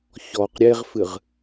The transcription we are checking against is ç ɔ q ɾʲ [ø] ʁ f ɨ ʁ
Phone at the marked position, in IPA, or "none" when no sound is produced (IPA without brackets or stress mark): e